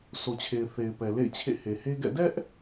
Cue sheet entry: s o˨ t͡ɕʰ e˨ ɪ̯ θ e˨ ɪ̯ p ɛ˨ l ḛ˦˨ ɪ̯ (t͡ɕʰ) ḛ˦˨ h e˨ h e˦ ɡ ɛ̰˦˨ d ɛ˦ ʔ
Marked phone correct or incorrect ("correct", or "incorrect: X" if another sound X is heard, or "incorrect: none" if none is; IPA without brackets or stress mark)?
correct